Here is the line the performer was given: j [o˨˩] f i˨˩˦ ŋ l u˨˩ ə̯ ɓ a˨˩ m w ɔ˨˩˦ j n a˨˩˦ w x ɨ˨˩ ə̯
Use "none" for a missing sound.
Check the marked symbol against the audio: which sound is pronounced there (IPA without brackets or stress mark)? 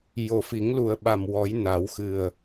o˨˩